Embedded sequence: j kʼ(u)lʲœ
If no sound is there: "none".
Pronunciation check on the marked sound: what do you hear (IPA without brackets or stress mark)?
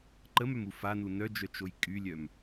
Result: y